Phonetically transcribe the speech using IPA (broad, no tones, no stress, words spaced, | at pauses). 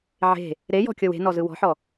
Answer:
ʕe̤ | ɾejɔ̤kʲɤw e̤nɔzɯ wɔ̤ħɔ